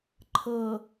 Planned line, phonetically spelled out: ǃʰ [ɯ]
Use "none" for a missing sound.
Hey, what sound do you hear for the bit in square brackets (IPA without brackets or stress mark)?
ɤ